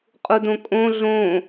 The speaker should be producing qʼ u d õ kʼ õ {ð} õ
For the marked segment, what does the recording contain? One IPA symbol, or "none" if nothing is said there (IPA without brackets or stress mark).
ɮ